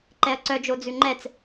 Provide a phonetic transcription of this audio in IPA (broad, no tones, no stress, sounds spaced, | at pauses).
ǃ ɛ ɐ̯ ǀ œ d͡ʒ o d͡z ʉ ŋ͡ǃ ɛ t͡s